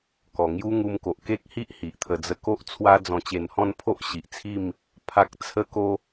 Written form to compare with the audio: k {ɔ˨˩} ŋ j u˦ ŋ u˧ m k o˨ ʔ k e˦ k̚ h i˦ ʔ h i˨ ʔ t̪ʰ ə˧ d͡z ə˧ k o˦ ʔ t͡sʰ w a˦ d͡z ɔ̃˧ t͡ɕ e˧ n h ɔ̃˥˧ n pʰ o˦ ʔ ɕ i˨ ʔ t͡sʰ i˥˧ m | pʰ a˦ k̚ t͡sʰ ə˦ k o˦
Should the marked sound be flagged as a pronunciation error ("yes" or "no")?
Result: no